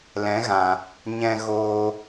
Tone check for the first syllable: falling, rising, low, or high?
rising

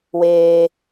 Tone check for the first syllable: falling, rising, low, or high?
high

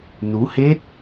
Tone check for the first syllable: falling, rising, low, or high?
rising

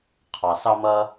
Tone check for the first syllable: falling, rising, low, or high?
low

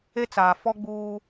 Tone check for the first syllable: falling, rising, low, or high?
high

